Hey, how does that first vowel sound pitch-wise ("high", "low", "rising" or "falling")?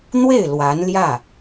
falling